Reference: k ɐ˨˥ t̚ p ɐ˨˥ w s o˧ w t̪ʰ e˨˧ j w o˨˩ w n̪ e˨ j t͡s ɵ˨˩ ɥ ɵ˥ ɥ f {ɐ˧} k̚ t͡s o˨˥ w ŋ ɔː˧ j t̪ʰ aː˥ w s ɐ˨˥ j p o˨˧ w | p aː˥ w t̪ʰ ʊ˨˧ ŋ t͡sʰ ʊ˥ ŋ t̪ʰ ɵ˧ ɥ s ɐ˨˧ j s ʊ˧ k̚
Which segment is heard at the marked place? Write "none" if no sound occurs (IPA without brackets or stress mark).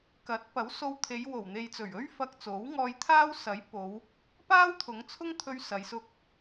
ɐ˧